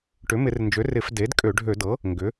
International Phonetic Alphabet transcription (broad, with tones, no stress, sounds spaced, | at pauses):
ʈ ʏ˩˥ m ɪ˧˩˧ r n d͡ʒ ø˩˥ r ɪ˧˩˧ f d e˩˥ d kʼ ø˧˩˧ ɖʱ ø˧˩˧ d ɤ˩˥ | ŋ ɡ ʏ˩˥